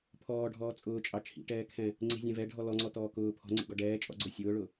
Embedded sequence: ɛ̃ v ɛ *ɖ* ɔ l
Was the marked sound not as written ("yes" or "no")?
yes